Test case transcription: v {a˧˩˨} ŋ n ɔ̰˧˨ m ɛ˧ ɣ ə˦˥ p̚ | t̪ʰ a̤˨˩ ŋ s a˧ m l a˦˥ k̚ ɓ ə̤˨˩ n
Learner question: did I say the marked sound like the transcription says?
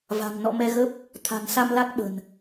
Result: no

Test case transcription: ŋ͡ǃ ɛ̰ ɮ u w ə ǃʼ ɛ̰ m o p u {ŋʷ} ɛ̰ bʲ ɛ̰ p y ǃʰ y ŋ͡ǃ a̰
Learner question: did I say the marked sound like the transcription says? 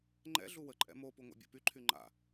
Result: yes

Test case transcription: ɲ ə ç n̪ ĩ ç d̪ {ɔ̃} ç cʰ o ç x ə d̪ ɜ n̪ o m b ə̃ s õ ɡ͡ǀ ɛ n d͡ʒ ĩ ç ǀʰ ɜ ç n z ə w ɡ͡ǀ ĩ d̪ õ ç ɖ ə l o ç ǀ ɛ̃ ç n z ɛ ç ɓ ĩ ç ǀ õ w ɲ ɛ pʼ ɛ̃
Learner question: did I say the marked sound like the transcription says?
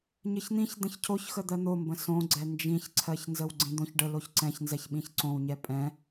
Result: no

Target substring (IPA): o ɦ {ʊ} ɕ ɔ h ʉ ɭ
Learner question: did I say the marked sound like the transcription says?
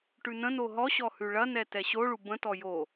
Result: no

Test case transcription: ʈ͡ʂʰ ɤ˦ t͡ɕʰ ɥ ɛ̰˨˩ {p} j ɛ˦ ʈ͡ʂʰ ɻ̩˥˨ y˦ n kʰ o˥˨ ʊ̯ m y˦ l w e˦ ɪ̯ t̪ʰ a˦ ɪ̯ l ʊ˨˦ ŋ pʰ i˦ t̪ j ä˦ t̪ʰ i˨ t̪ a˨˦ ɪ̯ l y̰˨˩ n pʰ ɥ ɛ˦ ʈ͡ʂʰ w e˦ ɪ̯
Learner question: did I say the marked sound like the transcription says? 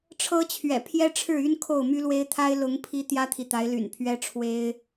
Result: no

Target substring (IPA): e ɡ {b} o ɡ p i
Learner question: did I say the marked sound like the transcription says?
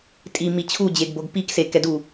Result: yes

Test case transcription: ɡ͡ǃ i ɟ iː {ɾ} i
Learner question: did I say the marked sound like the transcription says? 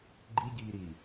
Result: yes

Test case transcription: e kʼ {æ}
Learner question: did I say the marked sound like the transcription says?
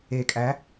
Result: yes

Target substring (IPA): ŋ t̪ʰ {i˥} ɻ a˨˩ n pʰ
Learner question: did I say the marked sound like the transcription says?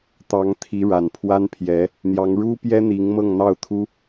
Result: no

